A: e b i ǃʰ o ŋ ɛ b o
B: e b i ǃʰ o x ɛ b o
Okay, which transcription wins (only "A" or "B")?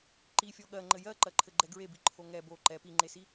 A